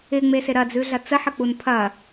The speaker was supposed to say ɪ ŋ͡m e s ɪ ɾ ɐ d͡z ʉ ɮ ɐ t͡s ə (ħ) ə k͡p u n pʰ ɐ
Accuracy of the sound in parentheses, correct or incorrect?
correct